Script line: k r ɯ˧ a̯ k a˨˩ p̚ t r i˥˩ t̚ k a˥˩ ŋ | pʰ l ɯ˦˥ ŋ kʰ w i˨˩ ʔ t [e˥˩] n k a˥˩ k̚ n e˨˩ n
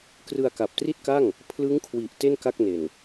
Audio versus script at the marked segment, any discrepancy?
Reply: no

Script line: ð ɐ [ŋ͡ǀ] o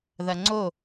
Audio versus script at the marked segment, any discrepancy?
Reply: no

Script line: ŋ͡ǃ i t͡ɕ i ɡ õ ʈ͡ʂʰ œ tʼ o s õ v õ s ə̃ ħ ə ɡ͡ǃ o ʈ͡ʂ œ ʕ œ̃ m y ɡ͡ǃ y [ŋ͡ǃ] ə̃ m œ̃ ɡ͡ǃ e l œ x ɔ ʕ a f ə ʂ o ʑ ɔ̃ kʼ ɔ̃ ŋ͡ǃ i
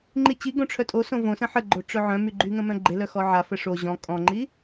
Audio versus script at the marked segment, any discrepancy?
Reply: yes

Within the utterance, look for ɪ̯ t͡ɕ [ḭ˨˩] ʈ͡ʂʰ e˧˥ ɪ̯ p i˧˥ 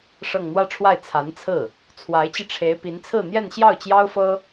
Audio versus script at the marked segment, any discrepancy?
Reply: yes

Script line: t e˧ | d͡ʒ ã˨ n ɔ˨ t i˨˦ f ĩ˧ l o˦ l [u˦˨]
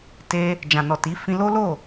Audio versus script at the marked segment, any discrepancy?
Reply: yes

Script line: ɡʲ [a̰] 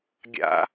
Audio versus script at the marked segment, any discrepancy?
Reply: no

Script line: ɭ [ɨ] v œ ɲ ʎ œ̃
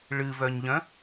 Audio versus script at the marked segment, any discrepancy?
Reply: no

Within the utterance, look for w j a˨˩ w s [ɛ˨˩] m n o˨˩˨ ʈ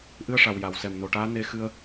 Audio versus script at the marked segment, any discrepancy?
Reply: no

